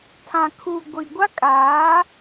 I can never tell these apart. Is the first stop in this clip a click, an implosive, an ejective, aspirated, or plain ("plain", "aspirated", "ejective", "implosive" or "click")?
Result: aspirated